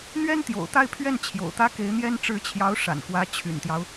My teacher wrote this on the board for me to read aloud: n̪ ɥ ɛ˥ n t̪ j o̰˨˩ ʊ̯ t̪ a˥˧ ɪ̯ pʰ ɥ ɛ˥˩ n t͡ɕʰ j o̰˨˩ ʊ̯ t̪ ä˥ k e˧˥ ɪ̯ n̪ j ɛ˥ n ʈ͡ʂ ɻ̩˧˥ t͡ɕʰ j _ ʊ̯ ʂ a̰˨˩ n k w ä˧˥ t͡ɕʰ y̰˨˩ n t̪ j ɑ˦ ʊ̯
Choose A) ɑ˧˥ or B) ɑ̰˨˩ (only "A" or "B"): A